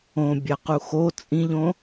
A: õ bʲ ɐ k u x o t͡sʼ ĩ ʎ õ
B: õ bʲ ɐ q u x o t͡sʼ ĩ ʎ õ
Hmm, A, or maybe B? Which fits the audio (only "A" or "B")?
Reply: B